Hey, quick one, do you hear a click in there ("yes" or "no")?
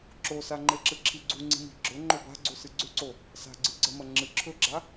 yes